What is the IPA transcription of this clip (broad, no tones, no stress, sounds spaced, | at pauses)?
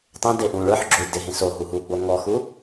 tˤ ẽ d e ʔ ũ ɭ ə˞ ħ ɡ͡ǁ o i̯ d ɪ ɦ ẽ s o ɦ u ɦ u ɡ͡b o ŋ ɔ x u